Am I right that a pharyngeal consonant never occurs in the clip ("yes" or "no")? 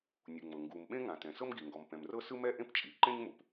yes